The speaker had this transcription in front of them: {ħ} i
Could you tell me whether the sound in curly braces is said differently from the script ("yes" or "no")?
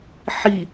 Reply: no